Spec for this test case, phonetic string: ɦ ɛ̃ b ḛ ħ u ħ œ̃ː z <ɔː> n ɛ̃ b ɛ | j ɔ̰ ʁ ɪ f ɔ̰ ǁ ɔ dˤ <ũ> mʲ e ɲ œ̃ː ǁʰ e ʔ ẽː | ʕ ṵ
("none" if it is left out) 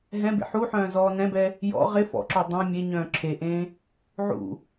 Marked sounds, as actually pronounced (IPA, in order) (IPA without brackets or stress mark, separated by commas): ɔː, ũ